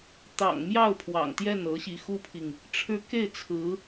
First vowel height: low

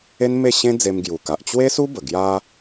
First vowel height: mid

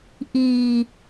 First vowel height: high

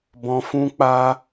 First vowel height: mid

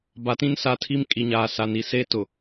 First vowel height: low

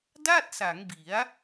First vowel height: low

